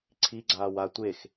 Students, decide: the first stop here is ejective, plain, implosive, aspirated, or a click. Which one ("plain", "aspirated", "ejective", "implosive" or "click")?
click